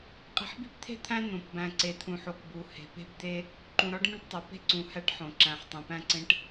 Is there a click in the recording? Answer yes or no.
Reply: yes